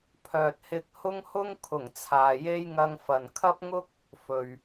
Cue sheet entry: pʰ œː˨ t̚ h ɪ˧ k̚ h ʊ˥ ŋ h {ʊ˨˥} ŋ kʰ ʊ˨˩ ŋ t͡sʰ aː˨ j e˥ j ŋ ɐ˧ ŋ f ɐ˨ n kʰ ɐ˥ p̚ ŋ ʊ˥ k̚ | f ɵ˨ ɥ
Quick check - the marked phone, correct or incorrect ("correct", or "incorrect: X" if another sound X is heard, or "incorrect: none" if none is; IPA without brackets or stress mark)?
incorrect: ʊ˥